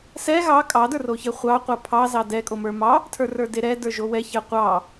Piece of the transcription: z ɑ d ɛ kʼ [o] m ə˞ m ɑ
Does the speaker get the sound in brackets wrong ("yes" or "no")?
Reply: no